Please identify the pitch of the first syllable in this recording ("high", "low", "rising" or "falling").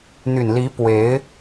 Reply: low